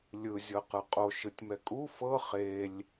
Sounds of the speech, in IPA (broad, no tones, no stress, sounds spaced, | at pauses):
lʲ ɯ zʲ ɤ q ɯ qʼ o ʃ ɯ tʲ m ɛ kʼ u f ɤ χ e lʲ